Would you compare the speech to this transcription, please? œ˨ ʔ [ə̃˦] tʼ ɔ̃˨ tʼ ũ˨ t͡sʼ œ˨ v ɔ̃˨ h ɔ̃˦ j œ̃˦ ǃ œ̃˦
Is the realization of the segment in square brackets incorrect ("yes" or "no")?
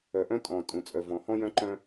yes